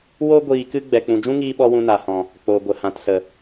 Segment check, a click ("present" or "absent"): absent